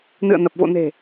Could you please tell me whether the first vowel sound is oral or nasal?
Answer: oral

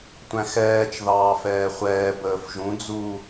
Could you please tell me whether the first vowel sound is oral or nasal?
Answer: nasal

